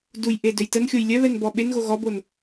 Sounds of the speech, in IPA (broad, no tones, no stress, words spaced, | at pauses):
dujʔedøj tənxʲoj lʲœβɛnbɔ ɓenɣo ɣɔbon